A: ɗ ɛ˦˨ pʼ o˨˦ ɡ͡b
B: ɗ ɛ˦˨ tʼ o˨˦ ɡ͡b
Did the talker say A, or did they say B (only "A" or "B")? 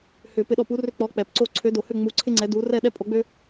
A